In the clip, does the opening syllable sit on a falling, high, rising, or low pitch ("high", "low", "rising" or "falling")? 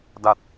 low